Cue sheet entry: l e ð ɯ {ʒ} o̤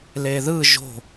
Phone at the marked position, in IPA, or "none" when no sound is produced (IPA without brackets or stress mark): ʒ